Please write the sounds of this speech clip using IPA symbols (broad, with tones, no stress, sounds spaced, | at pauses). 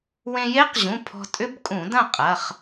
w ẽ˧ j e˦˥ q ʑ ũ˩˧˩ pʰ ɔ̤˧ tʼ ʏ˦˥ b kʼ ũ˧˩˧ d ɐ̃˥˨ qʼ ɐ˩˧˩ χ